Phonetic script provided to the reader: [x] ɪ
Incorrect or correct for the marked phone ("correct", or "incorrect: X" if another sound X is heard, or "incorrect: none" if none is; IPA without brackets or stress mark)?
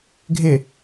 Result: incorrect: ɡʱ